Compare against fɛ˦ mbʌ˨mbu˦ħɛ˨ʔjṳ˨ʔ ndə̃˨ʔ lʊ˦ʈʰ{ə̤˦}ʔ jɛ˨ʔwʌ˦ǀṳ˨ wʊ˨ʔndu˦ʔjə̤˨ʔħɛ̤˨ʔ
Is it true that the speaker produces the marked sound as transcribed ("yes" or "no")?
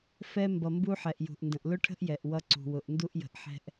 yes